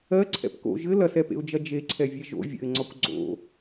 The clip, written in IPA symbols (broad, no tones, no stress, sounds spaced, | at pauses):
ɜ ǀʰ ɛ̰ p k o̰ ʒ ɘ l ɐ s ɛ p ḛ ʊ̯ d͡ʒ ɐ d͡ʒ e ǀʰ ɛ vʲ ɛ ʒ o̰ vʲ ə̰ ɪ̯ ŋ͡ǀ ɒ kʷ ɡ͡ǀ o̰